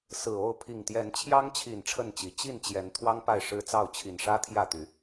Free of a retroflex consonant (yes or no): no